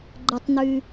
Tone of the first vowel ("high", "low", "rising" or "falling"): high